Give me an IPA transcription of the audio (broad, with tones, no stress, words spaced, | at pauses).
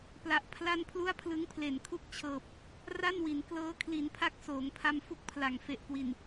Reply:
pla˨˩ʔpʰla˥˩n pʰlu˥˩a̯pʰlɯ˦˥ŋpʰle˨˩n kʰu˥˩k̚t͡ɕʰɤː˨˩p̚ | ra˥˩nwi˩˦n klɤː˦˥kʰli˩˦npʰa˦˥k̚ soː˩˦ŋpʰa˧m fu˥˩k̚pʰla˨˩ŋ fe˨˩ʔkwi˨˩n